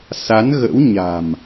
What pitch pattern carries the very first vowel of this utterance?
rising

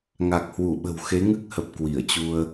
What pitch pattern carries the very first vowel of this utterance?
low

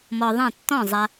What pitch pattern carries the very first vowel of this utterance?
low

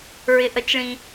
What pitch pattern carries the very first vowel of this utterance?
low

